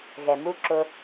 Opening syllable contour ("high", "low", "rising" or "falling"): low